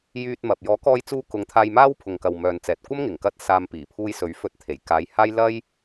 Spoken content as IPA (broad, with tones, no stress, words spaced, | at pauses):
jyː˧t̚mɐ˨p̚ jɔː˨˥kɔː˧jt͡suː˧kʊ˨˧ŋ t̪ʰaː˧jmaː˥wpʰʊ˨ŋkɐ˨w mœː˨n t͡sɛː˨t̚kʷɐ˥mŋɪ˨˩ŋkɐ˧t̚ saː˧m piː˨˩pʰuː˧j sɵ˨˥ɥfɵ˧t̚ t̪ʰe˨˩jkaː˨˧jhaː˥j lɐ˥j